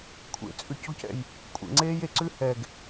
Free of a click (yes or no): no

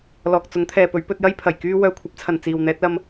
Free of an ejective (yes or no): yes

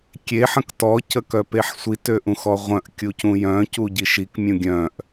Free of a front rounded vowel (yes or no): no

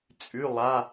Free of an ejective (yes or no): no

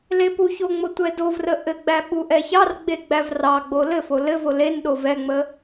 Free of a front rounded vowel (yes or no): yes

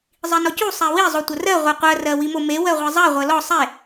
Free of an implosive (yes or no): yes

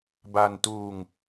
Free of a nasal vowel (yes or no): yes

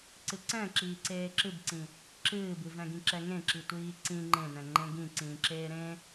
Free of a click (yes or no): no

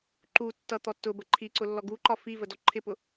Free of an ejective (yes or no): yes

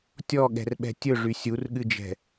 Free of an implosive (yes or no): no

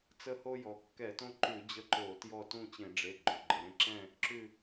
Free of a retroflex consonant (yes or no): no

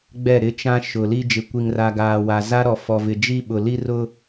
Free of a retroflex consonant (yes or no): yes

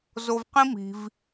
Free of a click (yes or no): yes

